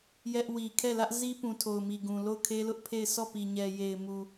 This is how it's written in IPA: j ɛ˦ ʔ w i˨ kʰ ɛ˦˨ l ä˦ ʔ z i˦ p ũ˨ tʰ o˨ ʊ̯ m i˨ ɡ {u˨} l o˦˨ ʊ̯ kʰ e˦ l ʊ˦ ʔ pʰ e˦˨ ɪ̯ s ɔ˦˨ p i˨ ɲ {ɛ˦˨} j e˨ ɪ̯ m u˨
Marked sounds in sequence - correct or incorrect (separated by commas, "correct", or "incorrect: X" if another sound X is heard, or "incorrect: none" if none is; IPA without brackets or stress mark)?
incorrect: ũ˨, incorrect: ɛ˨